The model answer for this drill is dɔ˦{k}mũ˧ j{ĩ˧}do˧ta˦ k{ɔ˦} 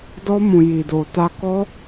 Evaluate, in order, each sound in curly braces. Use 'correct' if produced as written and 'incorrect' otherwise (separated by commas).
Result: incorrect, incorrect, correct